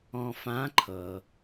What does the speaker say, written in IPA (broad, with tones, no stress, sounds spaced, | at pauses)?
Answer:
ɔ̃˧ f ã˧˥ ǃʰ ɤ˩